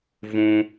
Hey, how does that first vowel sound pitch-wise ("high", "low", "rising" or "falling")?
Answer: low